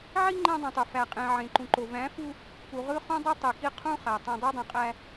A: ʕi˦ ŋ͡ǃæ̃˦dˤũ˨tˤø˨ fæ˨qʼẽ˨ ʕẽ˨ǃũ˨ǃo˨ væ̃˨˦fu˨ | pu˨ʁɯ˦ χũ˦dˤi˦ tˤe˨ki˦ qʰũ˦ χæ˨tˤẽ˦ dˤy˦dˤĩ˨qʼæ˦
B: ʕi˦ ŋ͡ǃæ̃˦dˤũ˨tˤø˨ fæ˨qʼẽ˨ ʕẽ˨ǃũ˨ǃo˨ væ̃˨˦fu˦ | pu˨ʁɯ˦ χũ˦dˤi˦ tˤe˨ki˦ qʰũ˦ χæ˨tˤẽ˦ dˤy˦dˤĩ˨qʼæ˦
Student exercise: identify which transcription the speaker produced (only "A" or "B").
B